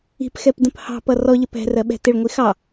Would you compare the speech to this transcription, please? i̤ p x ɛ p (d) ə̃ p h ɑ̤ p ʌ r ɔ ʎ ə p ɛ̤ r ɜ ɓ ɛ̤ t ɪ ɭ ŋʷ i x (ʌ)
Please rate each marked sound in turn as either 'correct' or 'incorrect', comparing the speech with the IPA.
correct, incorrect

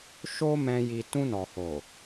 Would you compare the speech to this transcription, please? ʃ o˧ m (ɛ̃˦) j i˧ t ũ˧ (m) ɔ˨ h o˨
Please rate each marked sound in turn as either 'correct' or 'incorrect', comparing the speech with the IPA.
correct, incorrect

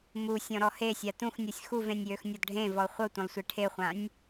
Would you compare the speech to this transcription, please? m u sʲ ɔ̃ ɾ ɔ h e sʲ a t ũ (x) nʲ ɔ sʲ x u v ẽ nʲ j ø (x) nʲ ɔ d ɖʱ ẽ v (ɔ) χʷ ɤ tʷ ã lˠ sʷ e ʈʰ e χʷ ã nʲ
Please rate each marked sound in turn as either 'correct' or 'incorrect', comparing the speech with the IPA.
correct, correct, correct

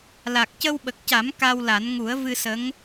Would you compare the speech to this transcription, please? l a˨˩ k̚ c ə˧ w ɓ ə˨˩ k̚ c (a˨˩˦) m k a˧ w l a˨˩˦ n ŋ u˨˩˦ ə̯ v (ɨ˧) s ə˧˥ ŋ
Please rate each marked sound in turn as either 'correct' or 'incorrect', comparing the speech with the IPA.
correct, correct

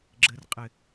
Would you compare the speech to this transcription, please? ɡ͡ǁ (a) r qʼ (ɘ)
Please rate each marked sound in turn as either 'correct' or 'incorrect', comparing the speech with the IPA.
incorrect, correct

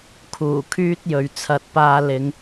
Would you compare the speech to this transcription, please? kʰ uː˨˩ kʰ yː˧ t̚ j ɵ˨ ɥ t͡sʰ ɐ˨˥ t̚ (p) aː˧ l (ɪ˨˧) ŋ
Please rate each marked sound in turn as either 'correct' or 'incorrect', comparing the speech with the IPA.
correct, correct

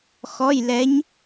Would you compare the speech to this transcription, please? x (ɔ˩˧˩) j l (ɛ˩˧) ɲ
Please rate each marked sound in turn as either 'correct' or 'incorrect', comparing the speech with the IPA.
correct, correct

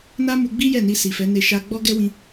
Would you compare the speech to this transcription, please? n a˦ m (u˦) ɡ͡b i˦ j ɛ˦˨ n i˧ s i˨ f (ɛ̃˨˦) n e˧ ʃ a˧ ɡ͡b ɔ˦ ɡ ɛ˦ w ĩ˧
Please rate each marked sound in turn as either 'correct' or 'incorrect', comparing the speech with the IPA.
incorrect, incorrect

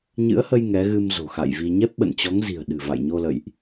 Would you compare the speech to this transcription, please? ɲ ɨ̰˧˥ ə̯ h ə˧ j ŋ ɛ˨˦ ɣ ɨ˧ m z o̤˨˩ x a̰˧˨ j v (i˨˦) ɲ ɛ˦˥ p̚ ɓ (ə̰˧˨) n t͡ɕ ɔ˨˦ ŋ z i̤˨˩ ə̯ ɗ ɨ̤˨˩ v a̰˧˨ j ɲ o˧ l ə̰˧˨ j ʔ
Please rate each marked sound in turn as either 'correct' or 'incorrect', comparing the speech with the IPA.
incorrect, correct

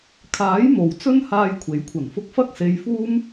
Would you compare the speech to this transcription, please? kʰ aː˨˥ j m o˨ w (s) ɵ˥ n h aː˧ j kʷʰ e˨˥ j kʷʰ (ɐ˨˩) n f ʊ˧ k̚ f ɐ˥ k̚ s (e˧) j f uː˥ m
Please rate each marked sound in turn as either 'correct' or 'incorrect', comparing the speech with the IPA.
incorrect, correct, correct

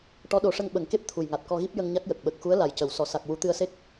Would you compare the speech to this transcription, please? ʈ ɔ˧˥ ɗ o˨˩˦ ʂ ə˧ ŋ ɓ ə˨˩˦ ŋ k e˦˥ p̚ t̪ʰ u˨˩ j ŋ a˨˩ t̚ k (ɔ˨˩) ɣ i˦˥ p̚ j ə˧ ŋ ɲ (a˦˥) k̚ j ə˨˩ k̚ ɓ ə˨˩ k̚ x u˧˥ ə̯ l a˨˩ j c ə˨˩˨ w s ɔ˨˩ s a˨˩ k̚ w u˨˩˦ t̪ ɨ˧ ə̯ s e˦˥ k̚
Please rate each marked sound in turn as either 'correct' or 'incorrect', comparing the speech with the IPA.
incorrect, correct

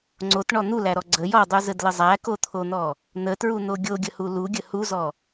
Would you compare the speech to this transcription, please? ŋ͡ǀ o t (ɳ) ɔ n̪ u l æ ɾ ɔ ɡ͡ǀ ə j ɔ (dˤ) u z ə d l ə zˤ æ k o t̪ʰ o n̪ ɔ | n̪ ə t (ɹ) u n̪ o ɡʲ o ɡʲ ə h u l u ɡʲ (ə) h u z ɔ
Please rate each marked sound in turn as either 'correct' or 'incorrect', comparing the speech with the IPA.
correct, correct, correct, correct

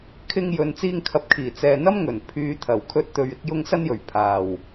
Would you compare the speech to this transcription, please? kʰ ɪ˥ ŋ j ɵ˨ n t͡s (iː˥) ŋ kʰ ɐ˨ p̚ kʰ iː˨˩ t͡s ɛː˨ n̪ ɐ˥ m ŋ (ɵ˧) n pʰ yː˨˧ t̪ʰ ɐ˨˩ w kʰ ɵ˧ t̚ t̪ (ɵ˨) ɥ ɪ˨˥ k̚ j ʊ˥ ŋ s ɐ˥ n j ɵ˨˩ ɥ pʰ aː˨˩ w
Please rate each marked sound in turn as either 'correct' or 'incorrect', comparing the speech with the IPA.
incorrect, incorrect, correct

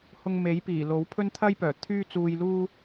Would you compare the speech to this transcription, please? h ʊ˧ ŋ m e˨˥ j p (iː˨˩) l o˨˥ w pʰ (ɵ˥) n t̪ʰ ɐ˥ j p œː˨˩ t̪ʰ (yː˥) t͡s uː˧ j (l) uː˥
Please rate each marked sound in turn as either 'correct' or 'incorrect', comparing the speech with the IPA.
correct, correct, correct, correct

